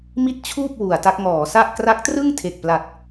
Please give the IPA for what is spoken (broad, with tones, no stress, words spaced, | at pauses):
mi˥˩t̚t͡ɕʰuː˥˩p̚ wu˩˦a̯ta˦˥k̚ ŋɔː˩˦sa˥˩ʔ kra˦˥k̚trɯ˥˩ŋ tʰe˨˩k̚pla˨˩t̚